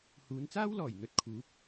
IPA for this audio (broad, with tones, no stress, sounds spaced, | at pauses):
h uː˨˧ n t͡s aː˥ w l ɔː˨˩ j n̪ ɵ˧ t̚ kʰ uː˨˥ p̚